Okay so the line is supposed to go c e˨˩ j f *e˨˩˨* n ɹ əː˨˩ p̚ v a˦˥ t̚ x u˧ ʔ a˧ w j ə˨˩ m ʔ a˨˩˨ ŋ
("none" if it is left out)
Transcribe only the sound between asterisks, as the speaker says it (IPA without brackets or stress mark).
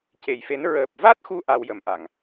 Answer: e˧˥